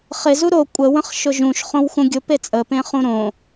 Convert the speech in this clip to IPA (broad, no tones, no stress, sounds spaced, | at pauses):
χ ɪ z u ɾ o kʷʼ ə w ə̃ χ ʃ ʊ ʒ ũ ʃ χ õ w x ũ ɡʲ ʊ p e t͡sʼ ə p ẽ χ ũ ɾ õ